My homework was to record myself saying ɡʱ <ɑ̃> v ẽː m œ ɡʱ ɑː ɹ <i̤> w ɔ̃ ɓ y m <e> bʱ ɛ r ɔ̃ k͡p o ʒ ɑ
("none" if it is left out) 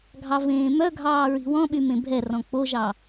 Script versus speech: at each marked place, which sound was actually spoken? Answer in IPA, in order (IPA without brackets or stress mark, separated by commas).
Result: ɑ, i̤, ẽ